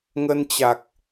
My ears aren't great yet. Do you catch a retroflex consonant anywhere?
no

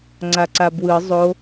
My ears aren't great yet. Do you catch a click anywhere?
yes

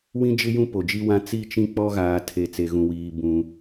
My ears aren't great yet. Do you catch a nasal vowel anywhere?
yes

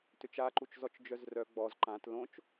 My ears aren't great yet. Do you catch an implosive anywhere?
no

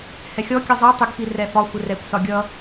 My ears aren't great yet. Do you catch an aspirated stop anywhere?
no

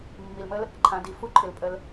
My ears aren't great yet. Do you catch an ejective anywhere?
yes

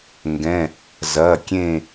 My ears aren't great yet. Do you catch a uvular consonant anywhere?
no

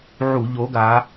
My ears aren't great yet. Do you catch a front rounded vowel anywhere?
no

